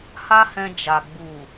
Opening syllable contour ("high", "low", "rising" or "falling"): high